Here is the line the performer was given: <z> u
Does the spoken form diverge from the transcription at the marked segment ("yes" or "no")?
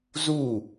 no